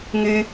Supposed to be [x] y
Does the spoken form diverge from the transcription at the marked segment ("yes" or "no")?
yes